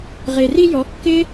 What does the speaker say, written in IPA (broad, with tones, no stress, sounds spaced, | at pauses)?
ʁ e˨ r i˧ j ɔ˨˦ kː ɪ˦